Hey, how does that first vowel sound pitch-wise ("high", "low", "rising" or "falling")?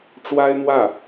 high